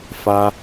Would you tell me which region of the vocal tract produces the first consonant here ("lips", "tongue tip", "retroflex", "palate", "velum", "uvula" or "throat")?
lips